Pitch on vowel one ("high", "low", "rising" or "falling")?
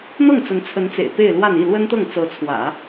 falling